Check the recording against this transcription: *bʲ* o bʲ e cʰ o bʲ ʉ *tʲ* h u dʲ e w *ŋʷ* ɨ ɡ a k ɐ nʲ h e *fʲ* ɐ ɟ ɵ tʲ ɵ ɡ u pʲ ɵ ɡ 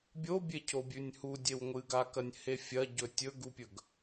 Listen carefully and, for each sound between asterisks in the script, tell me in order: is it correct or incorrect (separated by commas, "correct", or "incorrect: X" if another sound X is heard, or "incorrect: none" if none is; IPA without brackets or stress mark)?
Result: correct, incorrect: nʲ, correct, correct